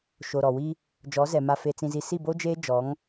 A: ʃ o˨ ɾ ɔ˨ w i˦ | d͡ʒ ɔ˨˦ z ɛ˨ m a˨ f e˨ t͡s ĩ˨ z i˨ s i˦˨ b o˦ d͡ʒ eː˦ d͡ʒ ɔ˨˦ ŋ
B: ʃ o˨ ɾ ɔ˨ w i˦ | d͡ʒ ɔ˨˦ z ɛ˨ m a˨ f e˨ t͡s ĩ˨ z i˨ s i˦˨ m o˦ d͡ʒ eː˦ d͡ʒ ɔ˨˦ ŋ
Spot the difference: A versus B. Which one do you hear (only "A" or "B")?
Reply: A